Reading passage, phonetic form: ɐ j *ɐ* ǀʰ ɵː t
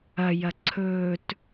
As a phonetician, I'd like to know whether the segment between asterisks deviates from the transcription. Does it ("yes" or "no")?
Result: no